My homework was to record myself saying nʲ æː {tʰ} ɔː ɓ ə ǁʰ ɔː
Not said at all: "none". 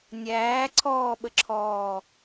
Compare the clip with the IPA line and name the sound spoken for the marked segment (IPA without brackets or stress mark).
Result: ǀʰ